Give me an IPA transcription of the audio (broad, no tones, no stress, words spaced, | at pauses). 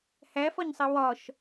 hæfɒɲsˤi wɒʃ